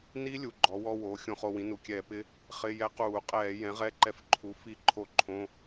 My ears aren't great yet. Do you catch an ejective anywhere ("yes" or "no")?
yes